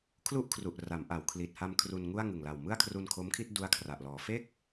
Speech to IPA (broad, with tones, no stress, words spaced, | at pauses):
kʰlu˥˩ʔkʰru˨˩ʔ ra˩˦mʔa˩˦w kʰli˨˩t̚ha˧m kʰru˧nŋu˥˩a̯ ŋɯ˨˩ŋla˨˩w mɯ˥˩a̯kʰru˧nkʰo˦˥mkʰi˥˩t̚ du˦˥a̯kʰra˨˩ʔlɔː˩˦ fe˥˩k̚